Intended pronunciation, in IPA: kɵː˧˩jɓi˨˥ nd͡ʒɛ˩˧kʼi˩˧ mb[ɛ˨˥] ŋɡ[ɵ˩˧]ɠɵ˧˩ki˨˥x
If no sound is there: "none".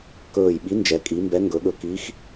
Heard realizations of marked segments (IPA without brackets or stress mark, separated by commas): ɛ˨˥, ɵ˩˧